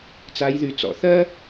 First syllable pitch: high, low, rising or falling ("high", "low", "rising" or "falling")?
rising